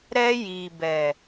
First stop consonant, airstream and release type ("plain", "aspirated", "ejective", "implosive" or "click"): plain